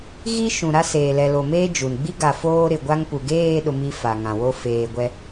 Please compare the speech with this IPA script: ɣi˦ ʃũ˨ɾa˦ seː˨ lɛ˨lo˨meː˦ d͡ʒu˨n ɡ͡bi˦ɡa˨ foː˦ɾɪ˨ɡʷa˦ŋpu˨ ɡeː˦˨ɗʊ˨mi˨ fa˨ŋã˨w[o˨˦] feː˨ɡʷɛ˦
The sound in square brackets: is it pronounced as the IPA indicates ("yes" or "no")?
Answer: no